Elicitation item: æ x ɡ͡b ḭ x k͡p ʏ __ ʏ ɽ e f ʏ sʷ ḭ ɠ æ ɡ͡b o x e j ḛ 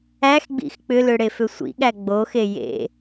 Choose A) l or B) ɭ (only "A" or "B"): A